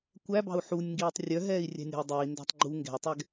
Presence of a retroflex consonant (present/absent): absent